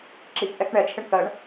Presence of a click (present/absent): present